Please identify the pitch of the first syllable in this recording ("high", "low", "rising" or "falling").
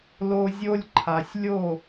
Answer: high